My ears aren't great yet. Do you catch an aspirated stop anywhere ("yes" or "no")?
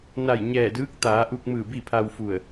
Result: yes